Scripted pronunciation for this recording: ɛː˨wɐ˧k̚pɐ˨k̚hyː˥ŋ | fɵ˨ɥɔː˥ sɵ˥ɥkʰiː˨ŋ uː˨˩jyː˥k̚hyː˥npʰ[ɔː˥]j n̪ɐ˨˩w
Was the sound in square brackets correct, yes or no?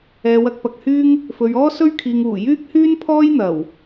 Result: yes